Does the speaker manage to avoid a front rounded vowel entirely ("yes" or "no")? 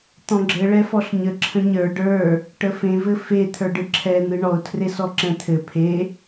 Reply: yes